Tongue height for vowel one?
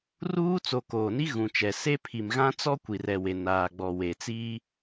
high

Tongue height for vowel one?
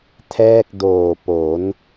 mid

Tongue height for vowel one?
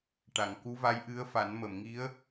low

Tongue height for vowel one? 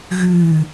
high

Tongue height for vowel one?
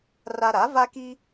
low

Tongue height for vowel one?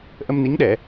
mid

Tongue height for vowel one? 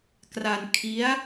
low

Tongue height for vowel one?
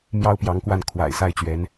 low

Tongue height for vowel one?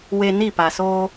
mid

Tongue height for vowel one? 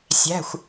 low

